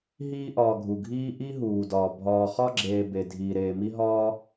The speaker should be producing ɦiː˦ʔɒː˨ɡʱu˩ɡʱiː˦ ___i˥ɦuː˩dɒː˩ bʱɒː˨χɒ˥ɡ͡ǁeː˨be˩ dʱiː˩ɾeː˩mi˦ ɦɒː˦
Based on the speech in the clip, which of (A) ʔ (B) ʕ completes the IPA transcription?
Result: A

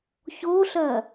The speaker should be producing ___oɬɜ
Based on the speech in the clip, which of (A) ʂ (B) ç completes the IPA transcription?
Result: B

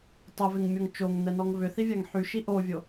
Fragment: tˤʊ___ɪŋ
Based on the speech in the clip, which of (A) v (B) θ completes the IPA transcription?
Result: A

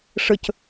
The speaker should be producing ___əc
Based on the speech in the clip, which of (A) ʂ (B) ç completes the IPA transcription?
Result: A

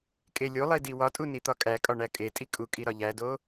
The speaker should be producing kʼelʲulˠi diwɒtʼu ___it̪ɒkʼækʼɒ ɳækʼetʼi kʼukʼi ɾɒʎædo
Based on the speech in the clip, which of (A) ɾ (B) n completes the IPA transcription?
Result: B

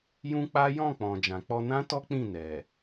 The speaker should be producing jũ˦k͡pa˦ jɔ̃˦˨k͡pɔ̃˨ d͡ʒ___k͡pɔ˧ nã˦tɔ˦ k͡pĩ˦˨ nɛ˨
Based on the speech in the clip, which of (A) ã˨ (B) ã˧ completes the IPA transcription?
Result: A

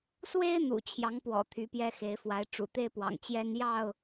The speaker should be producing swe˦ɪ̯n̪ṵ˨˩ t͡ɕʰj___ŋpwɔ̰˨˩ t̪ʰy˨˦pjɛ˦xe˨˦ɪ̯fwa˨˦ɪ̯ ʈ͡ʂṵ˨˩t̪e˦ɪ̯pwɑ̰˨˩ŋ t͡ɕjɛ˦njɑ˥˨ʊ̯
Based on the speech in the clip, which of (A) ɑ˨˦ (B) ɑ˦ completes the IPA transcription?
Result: A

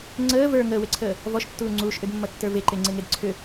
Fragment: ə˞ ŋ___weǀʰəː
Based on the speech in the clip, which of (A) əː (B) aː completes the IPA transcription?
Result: A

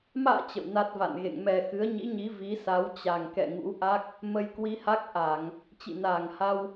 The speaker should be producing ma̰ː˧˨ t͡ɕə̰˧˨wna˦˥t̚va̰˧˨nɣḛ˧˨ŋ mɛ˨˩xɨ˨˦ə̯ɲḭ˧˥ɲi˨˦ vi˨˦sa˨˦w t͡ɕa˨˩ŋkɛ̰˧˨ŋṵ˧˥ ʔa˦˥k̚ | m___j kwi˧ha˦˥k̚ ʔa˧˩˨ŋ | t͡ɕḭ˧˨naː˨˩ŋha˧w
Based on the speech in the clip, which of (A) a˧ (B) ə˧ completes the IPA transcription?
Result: B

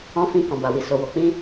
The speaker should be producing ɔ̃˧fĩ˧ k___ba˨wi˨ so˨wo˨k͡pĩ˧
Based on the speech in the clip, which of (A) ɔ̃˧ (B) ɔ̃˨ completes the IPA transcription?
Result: B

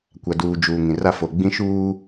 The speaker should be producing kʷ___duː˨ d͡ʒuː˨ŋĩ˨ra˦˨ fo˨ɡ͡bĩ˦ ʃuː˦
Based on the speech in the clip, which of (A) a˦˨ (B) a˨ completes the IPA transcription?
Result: B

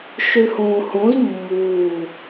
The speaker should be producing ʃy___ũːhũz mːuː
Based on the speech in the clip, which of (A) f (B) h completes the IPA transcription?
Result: B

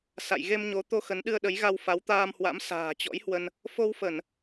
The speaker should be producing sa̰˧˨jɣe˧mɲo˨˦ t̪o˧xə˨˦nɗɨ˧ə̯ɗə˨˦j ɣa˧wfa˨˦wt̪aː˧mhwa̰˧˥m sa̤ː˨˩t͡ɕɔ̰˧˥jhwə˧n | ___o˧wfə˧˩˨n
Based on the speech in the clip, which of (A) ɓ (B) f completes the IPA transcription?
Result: B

